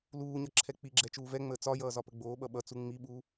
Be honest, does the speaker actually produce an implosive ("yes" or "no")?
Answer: yes